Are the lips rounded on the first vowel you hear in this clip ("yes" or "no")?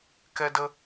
no